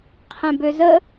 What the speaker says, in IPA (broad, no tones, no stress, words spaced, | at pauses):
qʰɛ̃bøzə